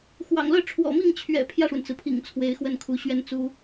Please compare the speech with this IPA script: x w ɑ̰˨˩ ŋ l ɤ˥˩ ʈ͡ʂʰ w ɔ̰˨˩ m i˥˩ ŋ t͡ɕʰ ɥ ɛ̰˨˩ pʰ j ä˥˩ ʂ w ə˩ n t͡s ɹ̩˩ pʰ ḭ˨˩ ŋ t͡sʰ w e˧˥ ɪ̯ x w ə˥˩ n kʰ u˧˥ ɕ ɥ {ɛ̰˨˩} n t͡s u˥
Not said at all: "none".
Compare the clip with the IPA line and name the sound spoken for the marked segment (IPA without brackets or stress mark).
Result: ɛ˥